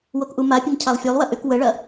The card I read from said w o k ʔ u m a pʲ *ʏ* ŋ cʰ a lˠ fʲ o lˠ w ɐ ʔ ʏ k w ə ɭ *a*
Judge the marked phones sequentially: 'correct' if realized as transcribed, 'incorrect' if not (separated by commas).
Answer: incorrect, incorrect